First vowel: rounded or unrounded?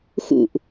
rounded